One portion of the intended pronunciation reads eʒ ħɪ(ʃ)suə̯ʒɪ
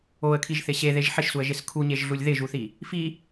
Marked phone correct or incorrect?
correct